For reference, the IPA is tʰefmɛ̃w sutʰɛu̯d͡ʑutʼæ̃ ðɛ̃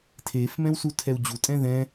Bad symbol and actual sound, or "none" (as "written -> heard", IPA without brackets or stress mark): æ̃ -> ɛ̃